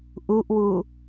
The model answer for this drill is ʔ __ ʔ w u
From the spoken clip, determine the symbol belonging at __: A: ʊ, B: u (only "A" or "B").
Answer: B